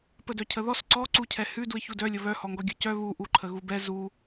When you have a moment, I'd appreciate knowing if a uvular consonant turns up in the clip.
no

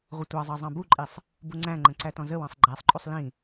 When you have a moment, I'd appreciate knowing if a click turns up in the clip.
yes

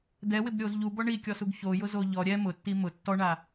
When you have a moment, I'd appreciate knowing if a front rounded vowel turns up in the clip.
no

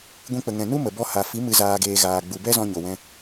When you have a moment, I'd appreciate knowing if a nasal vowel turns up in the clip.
yes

